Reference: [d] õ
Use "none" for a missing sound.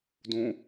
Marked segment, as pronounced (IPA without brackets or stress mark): d